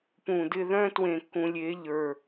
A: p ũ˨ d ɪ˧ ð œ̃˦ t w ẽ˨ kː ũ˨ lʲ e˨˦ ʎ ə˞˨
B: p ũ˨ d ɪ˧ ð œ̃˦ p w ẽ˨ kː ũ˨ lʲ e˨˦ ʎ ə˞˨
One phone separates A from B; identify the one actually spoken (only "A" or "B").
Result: A